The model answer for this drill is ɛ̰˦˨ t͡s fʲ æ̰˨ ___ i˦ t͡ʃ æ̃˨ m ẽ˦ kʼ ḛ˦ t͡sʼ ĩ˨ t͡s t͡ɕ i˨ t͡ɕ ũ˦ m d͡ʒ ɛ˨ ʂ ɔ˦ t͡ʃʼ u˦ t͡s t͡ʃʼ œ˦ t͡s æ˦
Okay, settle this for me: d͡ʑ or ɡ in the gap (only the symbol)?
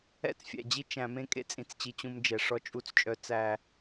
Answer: d͡ʑ